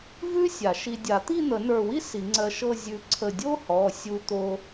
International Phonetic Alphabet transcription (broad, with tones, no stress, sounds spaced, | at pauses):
v ʉ˥ sʲ a˨˩˦ ʃ i˧ dʲ a˨˩˦ t̪ i˥˧ n̪ ə˨˩˦ n ə˞˧˩ w i˥ s i˨˩˦ ŋ͡ǀ ɜ˧ ʃ ɤ˥˧ zʲ ʉ˧ ǀʰ ə˧˩ dʲ o˥ h ɔ˩˧˩ sʲ u˧ t̪ o˧